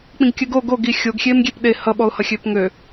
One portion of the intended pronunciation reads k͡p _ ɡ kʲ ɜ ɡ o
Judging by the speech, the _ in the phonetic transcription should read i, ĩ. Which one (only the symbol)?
ĩ